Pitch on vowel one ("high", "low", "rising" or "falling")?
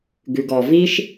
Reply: low